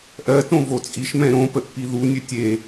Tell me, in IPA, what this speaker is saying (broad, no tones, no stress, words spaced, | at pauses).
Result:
ʔɜtõ vot͡sʼiʃmɛ̃ ɾõ pəʔpiðu nʲɘtʲe